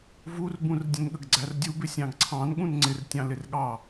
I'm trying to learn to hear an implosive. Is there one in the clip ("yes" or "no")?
yes